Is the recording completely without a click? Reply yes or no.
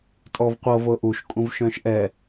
yes